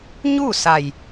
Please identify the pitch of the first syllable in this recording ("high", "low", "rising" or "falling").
falling